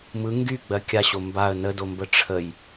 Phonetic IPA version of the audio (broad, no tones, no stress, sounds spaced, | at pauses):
m ɯ ŋ ɡ y ɡ͡b ɜ kʲ a ɕ o m b a ə̯ n ə d o m b ə ʈ͡ʂʰ ə j